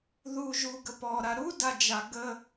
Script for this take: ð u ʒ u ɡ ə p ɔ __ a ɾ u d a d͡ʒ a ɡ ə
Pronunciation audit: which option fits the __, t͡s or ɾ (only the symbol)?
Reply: ɾ